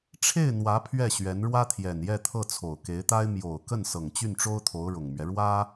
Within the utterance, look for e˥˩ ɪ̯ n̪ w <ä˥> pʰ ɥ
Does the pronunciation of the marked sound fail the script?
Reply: yes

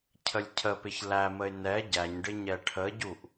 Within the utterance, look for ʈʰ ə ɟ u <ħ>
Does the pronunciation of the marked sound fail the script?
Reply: yes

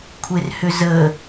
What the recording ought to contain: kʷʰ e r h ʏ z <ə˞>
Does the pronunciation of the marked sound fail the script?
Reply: yes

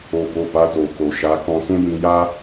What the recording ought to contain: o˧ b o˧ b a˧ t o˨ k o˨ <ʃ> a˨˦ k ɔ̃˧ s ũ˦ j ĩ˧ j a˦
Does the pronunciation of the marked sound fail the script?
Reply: no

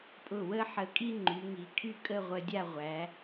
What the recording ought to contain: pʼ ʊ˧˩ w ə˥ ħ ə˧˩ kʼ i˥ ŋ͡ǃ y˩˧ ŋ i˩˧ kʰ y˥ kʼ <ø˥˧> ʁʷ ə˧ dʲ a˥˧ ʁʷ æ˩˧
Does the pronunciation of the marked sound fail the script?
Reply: yes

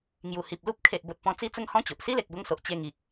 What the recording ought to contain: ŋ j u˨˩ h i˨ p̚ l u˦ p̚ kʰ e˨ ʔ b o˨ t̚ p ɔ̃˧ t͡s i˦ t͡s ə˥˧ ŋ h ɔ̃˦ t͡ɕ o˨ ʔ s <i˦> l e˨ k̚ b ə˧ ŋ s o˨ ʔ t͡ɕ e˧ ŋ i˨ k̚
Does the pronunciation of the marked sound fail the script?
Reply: no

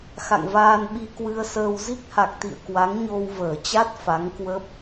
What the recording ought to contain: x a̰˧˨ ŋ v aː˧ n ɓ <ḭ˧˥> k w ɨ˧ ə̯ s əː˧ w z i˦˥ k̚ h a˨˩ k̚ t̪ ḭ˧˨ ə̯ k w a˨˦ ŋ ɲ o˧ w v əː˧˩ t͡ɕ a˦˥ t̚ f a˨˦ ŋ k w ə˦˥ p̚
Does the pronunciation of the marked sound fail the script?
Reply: yes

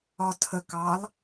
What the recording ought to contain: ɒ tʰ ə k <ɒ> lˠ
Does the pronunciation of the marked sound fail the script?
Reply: yes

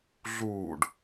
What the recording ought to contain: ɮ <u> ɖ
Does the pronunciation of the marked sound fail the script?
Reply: yes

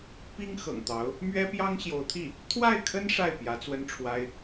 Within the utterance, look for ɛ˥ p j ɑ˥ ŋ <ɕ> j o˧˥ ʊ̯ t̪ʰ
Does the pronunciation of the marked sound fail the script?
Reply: no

